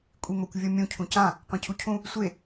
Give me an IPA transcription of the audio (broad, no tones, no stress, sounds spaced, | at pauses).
kʷʼ i m o kʷ vʲ o mʲ ũ cʰ ũ c ã | qʷ ẽ cʰ u cʰ ũ | sʷ e